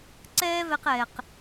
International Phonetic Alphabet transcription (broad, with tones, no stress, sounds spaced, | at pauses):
ǀ ɛː˥ v ɛ˧ q ɛː˩ q